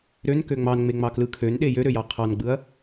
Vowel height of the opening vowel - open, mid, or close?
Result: mid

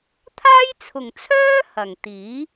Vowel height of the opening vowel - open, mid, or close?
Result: open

